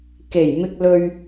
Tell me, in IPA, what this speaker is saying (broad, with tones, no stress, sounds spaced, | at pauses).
k e˨˩ j m ɪ˧ k̚ l ɵ˧ ɥ